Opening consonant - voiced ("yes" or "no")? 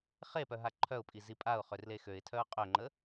no